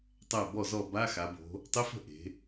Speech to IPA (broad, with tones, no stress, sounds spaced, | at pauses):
tˤ æ˥˩ b ɔ˥˩ z ɔ˥˩ b a˧˥˧ x a˩˧ b o̤˩˧ | tˤ ɪ˧˥˧ f ə̤˥˩ ʔ e̤˩˧